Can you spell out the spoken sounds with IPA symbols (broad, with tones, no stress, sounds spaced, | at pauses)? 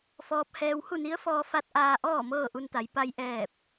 f ɔː˧ p̚ h ɛː˧ w h u˥˨ n i˧˥ ə̯ f ɔː˧ f a˧ t̚ ʔ aː˧ ʔ ɔː˥˨ m ɤː˥˨ ʔ u˧ n t̪ a˩˧ j p a˧ j ʔ ɛː˧˩ p̚